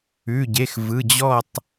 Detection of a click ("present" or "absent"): absent